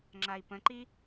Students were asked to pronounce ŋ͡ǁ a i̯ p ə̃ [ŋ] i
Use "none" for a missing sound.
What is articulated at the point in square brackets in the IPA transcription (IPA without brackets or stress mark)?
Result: ǃ